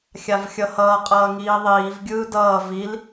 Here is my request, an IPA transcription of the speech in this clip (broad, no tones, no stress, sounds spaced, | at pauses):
xʲ a v xʲ ʌ h ʌː qʼ ʌː ŋ iː ðˤ iː v ɡʲ ɯː d ʌː v i l